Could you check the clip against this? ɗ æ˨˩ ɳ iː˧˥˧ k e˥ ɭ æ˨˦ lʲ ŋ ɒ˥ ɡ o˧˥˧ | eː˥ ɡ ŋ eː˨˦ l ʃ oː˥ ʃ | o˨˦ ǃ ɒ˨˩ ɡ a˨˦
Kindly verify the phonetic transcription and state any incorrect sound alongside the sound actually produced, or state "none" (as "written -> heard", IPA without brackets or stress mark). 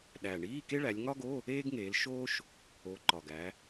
a˨˦ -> æ˨˦